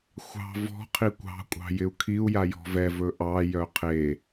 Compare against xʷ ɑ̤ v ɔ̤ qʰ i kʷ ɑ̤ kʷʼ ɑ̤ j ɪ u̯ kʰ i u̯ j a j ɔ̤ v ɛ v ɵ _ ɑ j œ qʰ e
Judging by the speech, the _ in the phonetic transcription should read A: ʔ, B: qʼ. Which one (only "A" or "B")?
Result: A